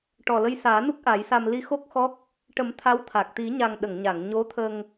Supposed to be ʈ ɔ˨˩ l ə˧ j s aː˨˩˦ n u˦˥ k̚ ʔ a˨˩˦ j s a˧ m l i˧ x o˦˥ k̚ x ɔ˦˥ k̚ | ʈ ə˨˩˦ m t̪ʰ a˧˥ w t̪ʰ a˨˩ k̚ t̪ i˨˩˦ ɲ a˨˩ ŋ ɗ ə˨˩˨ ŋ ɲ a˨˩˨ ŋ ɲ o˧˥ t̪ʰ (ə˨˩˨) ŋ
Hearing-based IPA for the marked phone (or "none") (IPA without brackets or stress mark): ə˧